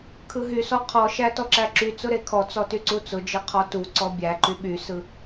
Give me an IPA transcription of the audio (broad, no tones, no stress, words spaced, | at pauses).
kʰɯɦysɔ qʰɔʃæ tɔǁæǁyt͡sʊ ɾekʰɔt͡sɔ tyǀut͡sʊd͡ʒɯ qʰɔtuǀɔ bʲæǃy ɓysɯ